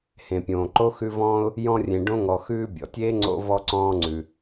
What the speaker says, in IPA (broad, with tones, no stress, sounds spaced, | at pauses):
h ẽ˩ pʲ õː˩ ǃ o˥ x ʉ˦ v ɔ̃ː˥ ʊ̯ | j ɔ̃˦ rʲ ẽ˨ ɖ õ˦ ŋ ɔ˨ x ʉː˦ bʲ ɔ̰˩ tʲ eː˥ ŋ͡ǀ o̰˦ v ɔ˦ ǀ ɔ̃ː˦ ŋ͡ǀ ʉ˨